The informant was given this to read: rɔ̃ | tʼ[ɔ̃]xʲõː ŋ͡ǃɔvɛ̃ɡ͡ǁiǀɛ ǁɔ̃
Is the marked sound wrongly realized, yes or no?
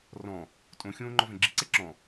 yes